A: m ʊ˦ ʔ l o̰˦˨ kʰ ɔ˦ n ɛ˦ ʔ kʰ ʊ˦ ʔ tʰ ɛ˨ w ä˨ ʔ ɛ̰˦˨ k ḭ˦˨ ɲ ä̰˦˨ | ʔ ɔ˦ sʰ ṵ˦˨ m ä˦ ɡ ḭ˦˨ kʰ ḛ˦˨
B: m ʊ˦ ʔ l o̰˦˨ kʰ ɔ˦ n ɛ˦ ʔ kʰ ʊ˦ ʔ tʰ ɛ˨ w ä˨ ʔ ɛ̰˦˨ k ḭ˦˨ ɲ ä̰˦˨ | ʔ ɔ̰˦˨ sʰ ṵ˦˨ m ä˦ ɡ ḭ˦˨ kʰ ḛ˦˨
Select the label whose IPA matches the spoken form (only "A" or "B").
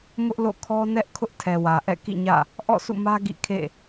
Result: B